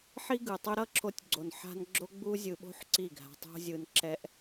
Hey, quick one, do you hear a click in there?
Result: yes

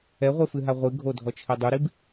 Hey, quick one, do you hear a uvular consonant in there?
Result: yes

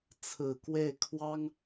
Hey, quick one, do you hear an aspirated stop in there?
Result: yes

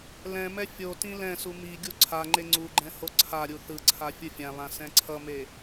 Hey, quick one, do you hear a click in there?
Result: yes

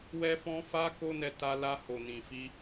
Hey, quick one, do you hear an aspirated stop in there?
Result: no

